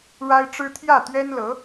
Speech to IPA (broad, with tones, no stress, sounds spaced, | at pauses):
ɻ a˥ ɪ̯ ʈ͡ʂ ɻ̩˥ t̪ʰ j ä˥˩ t̪ ɥ ɛ˥ n l ɤ˧˥